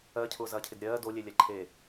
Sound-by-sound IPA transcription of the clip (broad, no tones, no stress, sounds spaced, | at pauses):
ɜ cʰ ʊː z ɐː cʰ ɪ d ɾʲ ɜː d o lʲ e lʲ ɛ ǃʰ e